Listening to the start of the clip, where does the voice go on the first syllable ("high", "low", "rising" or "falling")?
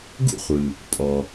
high